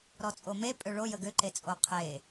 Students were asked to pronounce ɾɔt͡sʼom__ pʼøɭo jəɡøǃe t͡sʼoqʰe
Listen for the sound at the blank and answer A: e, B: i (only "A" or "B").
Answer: A